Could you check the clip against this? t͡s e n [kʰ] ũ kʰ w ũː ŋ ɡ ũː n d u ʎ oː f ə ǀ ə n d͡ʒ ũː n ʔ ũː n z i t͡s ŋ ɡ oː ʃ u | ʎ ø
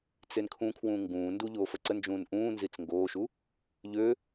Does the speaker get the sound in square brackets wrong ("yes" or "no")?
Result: no